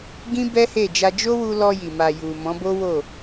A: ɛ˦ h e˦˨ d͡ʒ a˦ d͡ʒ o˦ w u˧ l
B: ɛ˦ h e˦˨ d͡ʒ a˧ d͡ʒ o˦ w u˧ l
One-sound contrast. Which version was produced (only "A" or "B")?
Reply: B